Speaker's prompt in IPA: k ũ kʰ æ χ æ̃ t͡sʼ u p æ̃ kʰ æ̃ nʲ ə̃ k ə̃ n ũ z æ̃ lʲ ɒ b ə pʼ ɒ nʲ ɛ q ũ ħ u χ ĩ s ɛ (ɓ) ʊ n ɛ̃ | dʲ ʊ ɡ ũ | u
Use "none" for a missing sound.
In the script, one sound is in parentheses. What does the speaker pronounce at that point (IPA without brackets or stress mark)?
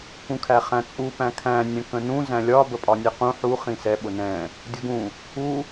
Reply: ɓ